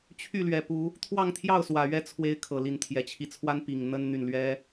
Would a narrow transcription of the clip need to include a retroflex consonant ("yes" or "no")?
no